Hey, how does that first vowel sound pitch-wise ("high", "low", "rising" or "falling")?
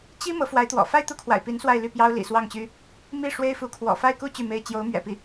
high